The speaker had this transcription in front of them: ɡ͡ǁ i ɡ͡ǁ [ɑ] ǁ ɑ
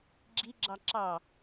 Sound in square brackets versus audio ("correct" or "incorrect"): correct